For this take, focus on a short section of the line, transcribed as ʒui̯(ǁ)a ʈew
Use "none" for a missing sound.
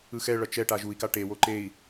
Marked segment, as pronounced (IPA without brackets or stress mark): k